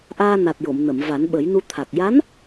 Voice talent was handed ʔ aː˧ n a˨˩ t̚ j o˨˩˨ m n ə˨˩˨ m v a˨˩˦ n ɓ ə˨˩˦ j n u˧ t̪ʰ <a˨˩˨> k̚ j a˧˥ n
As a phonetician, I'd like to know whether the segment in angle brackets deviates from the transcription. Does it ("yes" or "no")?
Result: yes